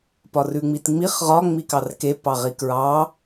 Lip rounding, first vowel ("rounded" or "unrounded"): rounded